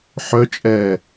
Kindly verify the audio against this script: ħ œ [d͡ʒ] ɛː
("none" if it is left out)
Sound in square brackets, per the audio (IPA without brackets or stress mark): t͡ʃʼ